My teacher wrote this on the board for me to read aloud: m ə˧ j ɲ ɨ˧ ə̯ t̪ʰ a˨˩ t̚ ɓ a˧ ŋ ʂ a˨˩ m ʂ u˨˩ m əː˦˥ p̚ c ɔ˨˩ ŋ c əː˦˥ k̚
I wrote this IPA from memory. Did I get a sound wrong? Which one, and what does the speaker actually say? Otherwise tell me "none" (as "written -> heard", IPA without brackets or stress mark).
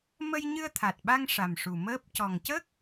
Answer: none